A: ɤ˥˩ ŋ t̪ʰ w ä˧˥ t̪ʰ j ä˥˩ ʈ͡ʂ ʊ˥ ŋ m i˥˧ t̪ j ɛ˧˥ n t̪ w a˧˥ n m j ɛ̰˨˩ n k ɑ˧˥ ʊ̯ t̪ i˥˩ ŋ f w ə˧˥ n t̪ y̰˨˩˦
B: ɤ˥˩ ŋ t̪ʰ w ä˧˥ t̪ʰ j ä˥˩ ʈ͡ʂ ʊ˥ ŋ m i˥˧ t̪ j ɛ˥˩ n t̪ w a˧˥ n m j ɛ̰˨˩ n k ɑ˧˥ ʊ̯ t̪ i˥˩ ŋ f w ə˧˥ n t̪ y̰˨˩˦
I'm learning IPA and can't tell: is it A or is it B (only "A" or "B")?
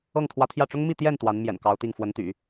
B